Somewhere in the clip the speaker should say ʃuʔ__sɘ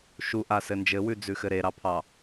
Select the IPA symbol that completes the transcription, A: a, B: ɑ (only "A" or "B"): A